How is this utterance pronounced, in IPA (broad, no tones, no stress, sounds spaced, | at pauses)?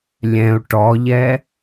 lʲ ɛ̃ u̯ ʈ ɔ ʎ ɛ